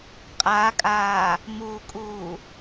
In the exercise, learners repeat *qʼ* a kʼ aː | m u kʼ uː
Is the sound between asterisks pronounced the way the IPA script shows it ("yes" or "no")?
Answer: yes